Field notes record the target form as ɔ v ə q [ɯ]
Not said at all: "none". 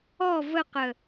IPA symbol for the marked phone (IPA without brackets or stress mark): ə